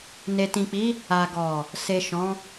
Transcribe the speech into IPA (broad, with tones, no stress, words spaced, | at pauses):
ne˨tĩ˨k͡pi˨˦ | a˨ɡɔ˨ | se˨ ʃɔ̃˨˦